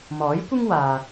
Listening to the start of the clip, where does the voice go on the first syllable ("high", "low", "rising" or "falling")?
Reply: rising